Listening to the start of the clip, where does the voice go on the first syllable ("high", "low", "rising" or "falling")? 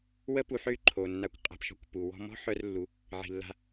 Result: high